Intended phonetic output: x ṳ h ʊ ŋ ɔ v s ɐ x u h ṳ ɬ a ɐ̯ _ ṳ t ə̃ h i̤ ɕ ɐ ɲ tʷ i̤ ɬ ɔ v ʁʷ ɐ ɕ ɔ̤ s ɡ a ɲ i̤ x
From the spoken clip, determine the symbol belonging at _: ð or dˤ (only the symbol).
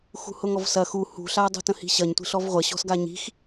dˤ